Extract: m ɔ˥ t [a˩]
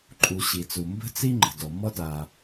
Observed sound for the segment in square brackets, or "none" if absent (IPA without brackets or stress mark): a˩